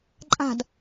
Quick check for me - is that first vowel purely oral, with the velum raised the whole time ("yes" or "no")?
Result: yes